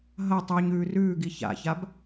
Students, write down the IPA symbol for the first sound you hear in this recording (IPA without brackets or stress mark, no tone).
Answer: ɦ